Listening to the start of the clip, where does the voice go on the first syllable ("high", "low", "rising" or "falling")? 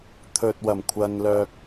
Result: low